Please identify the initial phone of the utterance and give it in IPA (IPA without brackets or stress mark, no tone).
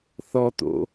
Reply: θ